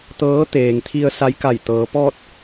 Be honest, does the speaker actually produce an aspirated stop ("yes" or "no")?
yes